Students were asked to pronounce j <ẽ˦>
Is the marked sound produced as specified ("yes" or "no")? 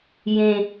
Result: yes